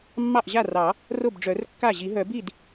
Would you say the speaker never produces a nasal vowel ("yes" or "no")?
yes